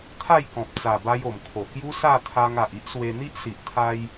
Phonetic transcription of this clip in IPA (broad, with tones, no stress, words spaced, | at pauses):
t̪ʰa˥˧jkɔ̃˨p̚t͡sa˨˩ba˧j o˨˩mkʰo˨˩kju˦ sa˥˧t̪ʰa˧ŋa˨ʔ i˦ʔswe˧n̪i˦ʔ si˨ʔt̪ʰa˧j